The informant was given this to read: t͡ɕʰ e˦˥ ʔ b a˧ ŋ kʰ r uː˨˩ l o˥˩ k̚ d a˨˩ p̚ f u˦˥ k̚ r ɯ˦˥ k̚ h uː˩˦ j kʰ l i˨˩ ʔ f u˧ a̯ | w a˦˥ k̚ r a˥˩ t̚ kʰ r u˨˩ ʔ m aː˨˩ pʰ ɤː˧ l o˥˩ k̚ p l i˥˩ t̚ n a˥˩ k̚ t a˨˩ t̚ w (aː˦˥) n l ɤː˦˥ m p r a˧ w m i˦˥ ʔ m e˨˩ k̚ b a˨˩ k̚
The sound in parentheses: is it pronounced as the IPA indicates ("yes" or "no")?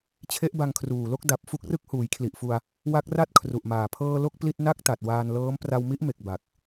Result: no